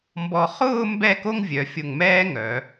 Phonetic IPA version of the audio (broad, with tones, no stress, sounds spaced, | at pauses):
m b ɔ˧ χ ʊː˥˧ m b ɛ˥˧ k o˥ ŋ vʲ œ˩˧ fʲ ʊ˧˩ ŋ m ɛː˥ ŋ œ˩˧